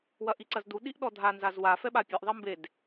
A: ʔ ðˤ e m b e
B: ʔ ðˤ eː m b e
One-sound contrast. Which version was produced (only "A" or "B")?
A